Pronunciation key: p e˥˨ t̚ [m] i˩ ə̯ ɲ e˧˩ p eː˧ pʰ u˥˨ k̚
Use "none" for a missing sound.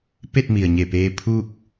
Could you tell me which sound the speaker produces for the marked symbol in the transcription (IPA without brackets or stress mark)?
m